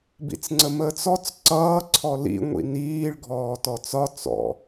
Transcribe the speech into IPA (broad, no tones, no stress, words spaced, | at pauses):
bḭt͡sŋ͡ǀəməːt͡sɔt͡s ǀʌː ǀʰɔlḭ ŋʷḭniːɭ ɡʱɔːtɔt͡sɒ t͡sɔ̰